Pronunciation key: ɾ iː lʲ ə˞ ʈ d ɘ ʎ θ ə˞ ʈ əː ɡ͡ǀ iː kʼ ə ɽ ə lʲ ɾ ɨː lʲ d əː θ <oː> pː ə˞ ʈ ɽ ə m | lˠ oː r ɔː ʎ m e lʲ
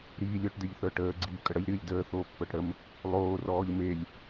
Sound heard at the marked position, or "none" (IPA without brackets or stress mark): oː